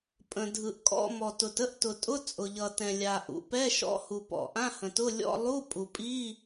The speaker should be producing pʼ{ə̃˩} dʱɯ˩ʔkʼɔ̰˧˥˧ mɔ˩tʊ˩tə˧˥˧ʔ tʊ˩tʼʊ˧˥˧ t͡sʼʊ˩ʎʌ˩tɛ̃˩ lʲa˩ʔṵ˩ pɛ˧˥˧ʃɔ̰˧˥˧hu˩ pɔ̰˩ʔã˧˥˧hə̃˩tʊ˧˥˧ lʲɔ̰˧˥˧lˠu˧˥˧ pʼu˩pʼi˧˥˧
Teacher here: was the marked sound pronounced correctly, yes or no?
yes